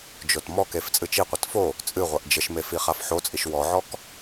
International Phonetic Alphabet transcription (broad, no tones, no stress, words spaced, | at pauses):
d͡ʒotmɔkef t͡sʼɨt͡ʃiqʷet fo | t͡sʼɨʁʷɐʔ d͡ʒɘʃmef iχafħot͡sʼiʃ wɔʕɔk